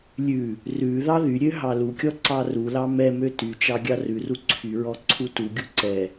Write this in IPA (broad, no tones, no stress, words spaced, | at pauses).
lʲʉ | rʉ ðɑðyɾʲø ɦɑlukʲɔ ǀɑrulɑ mɛmø tyt͡ʃɑ ɡʲɑrʉru ǀʰyɹɔ ǀʰutuɡʲu ǀɛ